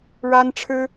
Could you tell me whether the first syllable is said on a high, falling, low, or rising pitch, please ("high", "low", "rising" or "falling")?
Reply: high